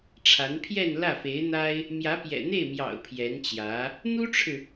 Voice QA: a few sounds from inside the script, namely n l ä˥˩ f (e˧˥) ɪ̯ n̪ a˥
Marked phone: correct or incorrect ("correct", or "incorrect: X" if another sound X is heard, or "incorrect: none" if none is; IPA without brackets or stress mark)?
correct